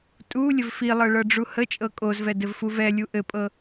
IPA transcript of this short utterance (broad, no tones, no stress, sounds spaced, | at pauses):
tʼ u lʲ ə v f i lˠ ɤ ɭ ɤ ɖ͡ʐ u h ə t͡ʃʼ ɤ kʼ o z v ɛ d ɘ v f u v ɛ lʲ u ʔ ɘ pʼ ɤ